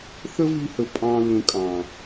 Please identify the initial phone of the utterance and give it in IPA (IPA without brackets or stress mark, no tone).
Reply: θ